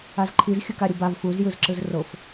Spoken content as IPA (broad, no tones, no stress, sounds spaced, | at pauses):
a z ǃʰ i z xʲ ɯ k a ɾʲ u b a v f u z j ɯ z ǁ ɯ z r o f